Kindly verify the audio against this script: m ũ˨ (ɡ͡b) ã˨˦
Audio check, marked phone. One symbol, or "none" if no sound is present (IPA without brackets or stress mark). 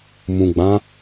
ɡ͡b